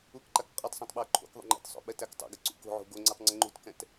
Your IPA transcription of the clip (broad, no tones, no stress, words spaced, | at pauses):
ukǃak qʼotˤsˤɛ̃tˤ ɓɛo̯ǃʰo̰kðˤṵ ŋ͡ǃɛ̰tsˤo̰ ɓɛtæktˤo̰ɡə ǀṵko̤ʕo̤ ɡoŋ͡ǀutˤ ŋ͡ǀəŋ͡ǃṳtkɛ̃t